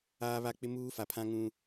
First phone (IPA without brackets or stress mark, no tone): aː